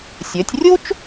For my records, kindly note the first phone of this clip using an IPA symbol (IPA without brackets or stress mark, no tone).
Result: sʲ